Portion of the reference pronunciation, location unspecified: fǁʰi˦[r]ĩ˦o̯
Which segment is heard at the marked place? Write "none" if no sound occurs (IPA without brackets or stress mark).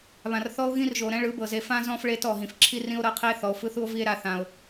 r